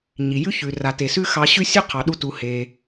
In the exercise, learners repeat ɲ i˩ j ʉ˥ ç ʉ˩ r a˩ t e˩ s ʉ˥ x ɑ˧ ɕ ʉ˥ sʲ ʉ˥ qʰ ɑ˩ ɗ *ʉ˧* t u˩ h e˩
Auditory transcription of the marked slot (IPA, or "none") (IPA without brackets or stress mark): u˧